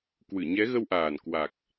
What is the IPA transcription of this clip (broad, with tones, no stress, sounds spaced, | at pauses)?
k w ɨ˧˩ ɲ ɛ˨˦ ɣ ə˧ w ʔ aː˨˩ n k w a˨˩ k̚